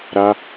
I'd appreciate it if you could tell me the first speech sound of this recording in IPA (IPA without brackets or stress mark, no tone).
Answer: ɾ